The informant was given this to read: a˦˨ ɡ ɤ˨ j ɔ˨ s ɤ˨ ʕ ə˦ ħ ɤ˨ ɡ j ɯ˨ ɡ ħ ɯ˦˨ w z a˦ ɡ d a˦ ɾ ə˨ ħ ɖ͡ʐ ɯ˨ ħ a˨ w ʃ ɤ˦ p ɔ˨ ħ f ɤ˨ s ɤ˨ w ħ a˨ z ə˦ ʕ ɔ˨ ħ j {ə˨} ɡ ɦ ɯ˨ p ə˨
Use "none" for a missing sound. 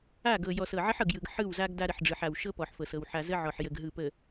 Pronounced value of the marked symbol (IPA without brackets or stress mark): ə˨